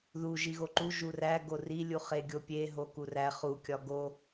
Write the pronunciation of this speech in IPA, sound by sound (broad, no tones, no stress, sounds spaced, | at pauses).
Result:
ð u ʒ i ɣ o ǃ u ʒ u r æ ɡ o r i lʲ u χ e ɡʲ o pʲ e ɦ o k u r æ χ u kʲ ɒ ɡ o